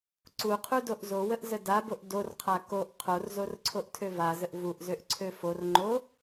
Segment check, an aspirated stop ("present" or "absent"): present